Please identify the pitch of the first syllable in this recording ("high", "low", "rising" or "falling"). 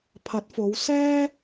rising